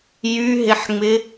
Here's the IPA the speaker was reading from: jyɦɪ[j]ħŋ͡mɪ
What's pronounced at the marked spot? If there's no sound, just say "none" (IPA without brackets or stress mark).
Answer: none